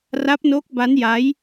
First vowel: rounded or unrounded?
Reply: unrounded